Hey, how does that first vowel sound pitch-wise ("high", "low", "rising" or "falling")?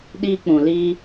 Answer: high